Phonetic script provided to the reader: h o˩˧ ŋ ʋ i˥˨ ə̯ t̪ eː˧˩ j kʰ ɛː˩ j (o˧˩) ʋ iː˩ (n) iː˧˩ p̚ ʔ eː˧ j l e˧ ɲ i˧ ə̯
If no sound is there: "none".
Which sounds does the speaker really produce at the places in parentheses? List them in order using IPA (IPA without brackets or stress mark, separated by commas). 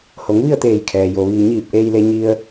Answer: o˩, ɲ